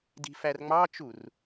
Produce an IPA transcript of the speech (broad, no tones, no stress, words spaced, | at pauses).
di̤færŋ͡mɑt͡ʃur